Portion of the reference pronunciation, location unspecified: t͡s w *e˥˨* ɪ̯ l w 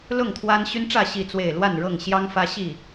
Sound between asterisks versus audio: correct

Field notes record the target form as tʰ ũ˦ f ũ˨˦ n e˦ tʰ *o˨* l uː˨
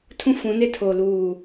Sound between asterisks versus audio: correct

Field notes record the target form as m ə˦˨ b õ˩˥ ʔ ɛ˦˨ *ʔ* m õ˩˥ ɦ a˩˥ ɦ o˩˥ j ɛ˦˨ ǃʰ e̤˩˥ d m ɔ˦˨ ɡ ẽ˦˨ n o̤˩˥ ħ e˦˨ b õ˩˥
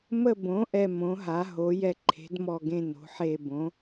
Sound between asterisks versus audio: incorrect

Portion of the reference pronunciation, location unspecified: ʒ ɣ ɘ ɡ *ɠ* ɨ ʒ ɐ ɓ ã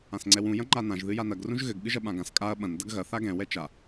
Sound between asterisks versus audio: correct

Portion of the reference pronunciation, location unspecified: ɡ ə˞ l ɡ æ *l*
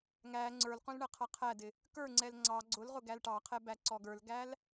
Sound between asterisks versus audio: correct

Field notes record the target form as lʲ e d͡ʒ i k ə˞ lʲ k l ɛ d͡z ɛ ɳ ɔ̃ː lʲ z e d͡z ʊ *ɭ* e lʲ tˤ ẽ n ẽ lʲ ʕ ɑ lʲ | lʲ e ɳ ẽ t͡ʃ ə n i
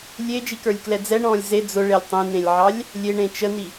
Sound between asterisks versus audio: correct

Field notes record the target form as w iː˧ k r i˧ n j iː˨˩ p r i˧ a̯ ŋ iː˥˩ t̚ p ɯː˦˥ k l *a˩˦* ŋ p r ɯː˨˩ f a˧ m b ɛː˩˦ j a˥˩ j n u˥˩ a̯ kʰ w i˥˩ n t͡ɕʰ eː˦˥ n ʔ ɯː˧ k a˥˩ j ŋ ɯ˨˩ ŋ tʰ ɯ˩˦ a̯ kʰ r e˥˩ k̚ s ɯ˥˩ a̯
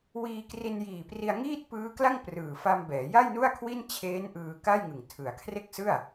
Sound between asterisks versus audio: incorrect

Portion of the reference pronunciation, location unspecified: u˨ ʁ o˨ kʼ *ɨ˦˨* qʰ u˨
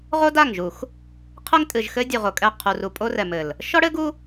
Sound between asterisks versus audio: incorrect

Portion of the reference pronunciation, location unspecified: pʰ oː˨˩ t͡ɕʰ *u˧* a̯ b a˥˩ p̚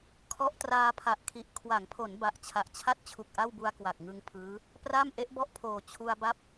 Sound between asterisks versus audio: correct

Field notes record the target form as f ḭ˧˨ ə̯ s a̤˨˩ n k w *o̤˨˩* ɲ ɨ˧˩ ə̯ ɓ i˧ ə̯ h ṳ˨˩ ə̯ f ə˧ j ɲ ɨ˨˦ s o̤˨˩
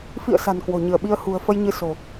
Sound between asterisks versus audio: correct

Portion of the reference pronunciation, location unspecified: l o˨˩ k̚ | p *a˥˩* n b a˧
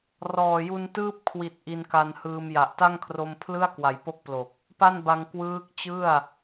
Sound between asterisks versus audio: correct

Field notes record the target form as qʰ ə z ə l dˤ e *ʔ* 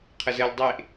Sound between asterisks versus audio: correct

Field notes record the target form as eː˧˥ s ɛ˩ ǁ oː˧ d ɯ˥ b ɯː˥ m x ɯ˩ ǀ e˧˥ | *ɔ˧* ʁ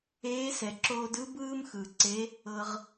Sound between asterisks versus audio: incorrect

